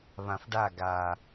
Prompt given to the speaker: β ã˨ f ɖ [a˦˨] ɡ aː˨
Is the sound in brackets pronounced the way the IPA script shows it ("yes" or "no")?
yes